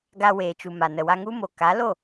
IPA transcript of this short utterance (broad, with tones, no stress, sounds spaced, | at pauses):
ɡ a˧ w eː˨ t͡ʃ u˨ m a˨ n ə˨ w a˧ ŋ u˦ m o˨ k a˨˦ l o˦˨